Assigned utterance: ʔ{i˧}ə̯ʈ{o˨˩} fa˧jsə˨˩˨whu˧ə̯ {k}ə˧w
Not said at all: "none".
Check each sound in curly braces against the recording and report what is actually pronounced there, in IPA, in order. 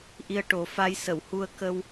i˧, o˨˩, k

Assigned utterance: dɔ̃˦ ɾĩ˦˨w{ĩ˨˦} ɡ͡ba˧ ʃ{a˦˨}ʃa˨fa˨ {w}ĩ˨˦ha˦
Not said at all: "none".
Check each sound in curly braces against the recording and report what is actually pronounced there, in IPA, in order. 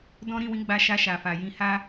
ĩ˨˦, a˧, j

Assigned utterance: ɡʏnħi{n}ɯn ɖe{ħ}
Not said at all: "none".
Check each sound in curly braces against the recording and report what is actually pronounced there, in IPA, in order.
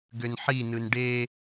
n, none

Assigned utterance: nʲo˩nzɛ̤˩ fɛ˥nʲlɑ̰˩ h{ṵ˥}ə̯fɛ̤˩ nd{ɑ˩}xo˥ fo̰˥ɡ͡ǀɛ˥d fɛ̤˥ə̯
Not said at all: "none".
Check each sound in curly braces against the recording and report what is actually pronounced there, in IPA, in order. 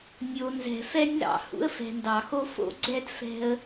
ṵ˥, ɑ˩

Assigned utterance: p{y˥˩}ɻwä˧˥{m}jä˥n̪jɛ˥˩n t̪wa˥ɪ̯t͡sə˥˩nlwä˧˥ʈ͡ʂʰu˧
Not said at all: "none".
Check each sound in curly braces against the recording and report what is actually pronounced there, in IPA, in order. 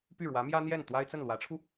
y˥˩, m

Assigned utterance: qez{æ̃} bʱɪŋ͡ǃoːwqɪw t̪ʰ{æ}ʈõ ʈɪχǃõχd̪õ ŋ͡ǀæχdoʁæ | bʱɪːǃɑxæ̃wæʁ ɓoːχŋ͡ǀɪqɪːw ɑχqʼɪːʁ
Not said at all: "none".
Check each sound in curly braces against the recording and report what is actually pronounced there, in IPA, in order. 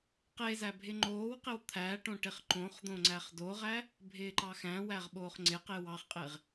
æ, æ

